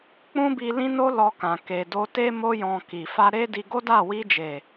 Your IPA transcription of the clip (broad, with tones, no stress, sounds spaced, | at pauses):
k͡p ũ˦ b i˧ l ĩ˦ n o˦ l ɔ˧ k ã˨ k e˨ d o˧ t e˦ m o˧ j ɔ̃˨ k i˨ f a˧ ɾ e˦ d i˧ ɡ o˦ d a˦˨ w i˧ d͡ʒ e˨